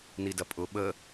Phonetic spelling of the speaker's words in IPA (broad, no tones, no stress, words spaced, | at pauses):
nidɐpʼʊ ɓə